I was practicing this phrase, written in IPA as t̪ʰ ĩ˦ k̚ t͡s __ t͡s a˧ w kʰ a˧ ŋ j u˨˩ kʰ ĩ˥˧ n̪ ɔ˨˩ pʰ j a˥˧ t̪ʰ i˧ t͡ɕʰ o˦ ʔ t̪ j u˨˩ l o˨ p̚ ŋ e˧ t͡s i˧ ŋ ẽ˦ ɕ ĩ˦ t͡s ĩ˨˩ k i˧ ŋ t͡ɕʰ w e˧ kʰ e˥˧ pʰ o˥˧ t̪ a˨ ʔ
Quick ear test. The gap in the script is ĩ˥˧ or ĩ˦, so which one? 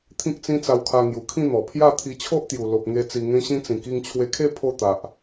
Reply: ĩ˦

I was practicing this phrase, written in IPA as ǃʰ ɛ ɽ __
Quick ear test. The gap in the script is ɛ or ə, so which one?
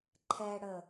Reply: ə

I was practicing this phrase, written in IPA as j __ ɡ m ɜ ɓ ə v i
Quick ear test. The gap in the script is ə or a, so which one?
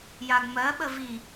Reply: a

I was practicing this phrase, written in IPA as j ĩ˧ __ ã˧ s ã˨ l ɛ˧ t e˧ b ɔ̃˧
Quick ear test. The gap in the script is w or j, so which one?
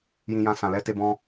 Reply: j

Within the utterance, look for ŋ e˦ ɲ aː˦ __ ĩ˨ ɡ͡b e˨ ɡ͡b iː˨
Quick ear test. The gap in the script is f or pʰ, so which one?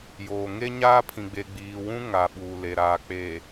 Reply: pʰ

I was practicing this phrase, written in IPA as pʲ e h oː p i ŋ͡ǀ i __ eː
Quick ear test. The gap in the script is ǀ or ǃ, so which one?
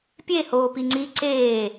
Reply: ǀ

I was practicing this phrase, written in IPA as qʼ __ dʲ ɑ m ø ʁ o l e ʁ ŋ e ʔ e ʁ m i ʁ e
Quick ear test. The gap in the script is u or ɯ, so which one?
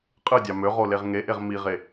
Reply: ɯ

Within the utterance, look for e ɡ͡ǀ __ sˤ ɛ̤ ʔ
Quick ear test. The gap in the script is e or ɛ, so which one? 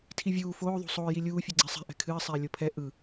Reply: e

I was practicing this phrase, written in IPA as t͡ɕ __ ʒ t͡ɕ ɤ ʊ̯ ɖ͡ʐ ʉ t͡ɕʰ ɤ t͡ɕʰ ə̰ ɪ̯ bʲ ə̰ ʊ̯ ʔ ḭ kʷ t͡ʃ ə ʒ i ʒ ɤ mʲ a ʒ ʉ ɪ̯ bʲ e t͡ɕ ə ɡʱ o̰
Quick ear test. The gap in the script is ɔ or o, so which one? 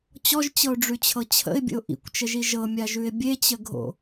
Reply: ɔ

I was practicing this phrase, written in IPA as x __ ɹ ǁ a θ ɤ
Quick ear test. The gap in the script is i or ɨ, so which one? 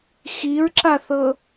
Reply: i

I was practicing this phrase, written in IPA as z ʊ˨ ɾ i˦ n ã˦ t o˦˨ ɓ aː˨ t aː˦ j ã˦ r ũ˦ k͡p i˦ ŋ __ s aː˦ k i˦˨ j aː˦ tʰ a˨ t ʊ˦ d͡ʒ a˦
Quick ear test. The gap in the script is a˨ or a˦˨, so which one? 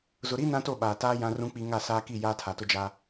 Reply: a˦˨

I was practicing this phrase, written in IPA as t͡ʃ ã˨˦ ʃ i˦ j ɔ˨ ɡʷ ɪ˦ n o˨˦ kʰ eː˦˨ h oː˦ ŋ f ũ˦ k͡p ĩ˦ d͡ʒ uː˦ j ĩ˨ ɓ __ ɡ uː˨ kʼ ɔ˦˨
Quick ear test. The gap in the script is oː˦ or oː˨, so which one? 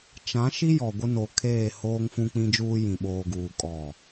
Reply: oː˨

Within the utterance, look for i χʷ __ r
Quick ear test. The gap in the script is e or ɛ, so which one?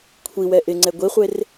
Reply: e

